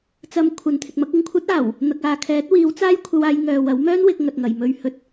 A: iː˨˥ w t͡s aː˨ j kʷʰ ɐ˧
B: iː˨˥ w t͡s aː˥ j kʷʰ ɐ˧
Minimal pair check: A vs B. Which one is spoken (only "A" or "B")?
B